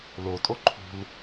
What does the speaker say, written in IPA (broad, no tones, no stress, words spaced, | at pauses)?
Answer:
lotʼo ǃʰṳl